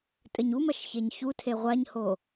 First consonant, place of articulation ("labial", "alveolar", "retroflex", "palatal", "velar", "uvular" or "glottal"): alveolar